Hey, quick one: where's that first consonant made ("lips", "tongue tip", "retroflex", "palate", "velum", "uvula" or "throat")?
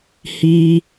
throat